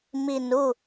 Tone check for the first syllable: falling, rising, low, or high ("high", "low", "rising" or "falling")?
low